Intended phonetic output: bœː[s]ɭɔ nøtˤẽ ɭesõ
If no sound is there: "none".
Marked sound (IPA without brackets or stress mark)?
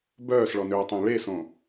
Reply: s